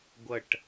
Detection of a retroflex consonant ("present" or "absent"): present